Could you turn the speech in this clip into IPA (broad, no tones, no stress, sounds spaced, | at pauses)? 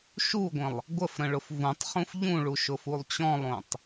ʃ u ɡʷ ə̃ lˠ | ɡʷ ə f ɾ ə̃ ɭ ʊ f v ũ tˤ χ ũ f ʎ ũ ɭ u ʃ ʊ f u lˠ t͡ɕ ɔ̃ lˠ õ tˤ